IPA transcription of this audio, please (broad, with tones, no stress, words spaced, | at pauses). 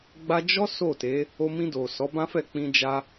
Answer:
ɡ͡ba˧d͡ʒɔ˦ so˦˨te˨˦ | o˧mĩ˧do˨ sɔ˨˦bã˦fɛ˦˨k͡pĩ˧ d͡ʒa˦